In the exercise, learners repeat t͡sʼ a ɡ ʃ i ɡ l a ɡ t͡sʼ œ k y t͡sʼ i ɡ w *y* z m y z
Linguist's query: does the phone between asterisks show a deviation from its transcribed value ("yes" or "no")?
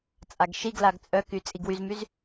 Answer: no